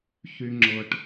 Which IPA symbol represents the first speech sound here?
ç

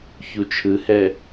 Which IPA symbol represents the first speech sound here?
ç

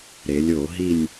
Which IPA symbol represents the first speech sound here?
ɾ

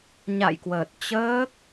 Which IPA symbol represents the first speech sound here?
ɲ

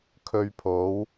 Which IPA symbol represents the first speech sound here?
kʰ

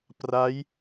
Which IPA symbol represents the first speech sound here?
p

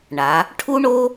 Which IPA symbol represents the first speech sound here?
ɳ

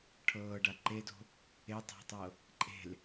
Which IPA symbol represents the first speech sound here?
ʈʰ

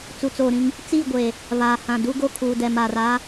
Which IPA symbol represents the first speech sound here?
t͡s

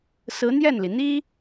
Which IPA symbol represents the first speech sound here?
s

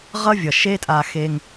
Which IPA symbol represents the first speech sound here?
ʁ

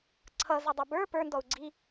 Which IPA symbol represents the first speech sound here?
ǀʰ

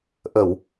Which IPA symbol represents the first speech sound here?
ʔ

